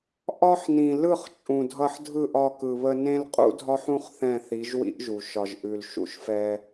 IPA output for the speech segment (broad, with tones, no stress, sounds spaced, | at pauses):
ʔ ɒ˦ ħ n ĩ˨ l ɯ˦˨ χ t͡ʃʼ ũ˨ dʱ ʌ˧ ħ dʱ ɯ˦˨ ʔ ɒ˧ k ɯ˨ β ə˧ n ẽ˦ l qʼ ṵ˦ dʱ ɒ˦ ħ ũ˦ χ θ ɛ̃˦˨ θ i˨˦ ʒ w ḭ˦ ʔ ʒ u˨ ʃ ɒ˨ ʒ ʔ ʉ˨ l ʃ ṵ˧ ʃ f ɛ˧